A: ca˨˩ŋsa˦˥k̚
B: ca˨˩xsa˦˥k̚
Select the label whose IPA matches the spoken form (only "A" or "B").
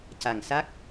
A